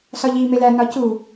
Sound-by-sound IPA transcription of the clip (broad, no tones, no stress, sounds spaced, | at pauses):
s ɒ ʎ iː m e l æ n ɒ c u